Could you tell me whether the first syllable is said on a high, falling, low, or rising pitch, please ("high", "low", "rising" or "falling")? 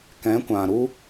rising